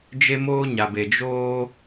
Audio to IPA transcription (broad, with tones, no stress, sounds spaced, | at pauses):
d͡ʒ e˦ m oː˦ ɲ a˨ b e˨ d͡ʒ oː˦